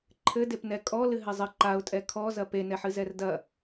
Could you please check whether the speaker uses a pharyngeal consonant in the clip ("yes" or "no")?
yes